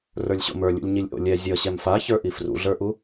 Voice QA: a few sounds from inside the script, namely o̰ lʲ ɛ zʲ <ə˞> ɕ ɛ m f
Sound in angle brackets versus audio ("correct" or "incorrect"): incorrect